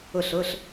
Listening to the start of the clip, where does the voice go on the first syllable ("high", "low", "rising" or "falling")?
falling